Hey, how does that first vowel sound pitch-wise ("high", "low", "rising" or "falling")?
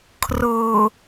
low